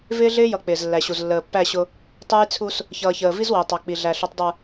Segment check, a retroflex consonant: absent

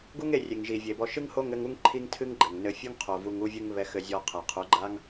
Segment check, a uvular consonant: present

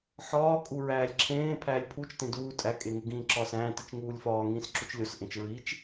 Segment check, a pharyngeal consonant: present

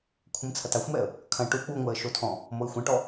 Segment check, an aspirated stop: present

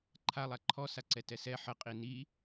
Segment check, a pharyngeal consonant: present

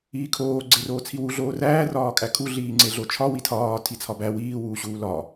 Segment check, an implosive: absent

